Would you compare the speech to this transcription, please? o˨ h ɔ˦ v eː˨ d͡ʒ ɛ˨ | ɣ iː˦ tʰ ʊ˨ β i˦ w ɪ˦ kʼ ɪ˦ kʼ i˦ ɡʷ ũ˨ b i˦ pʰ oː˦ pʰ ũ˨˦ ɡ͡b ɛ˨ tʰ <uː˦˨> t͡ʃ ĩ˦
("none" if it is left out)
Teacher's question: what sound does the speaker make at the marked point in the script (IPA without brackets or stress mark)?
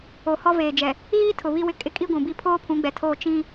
oː˦˨